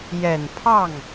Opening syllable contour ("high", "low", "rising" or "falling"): low